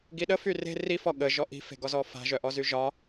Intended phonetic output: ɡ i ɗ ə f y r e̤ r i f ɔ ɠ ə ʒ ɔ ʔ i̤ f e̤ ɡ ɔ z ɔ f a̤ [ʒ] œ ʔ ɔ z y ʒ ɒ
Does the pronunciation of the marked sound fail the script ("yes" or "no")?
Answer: no